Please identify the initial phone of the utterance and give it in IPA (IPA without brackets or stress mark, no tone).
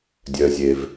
dʲ